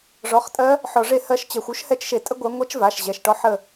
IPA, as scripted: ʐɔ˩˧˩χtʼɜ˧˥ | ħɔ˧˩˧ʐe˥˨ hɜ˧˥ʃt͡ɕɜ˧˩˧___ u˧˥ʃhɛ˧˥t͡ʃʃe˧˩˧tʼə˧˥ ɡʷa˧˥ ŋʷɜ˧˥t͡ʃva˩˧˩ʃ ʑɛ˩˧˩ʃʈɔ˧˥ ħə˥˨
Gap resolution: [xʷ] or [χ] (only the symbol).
xʷ